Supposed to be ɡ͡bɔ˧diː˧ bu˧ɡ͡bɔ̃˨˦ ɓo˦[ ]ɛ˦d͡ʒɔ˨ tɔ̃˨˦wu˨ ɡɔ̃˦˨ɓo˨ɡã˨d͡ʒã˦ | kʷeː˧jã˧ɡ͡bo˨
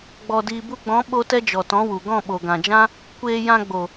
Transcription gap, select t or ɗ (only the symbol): t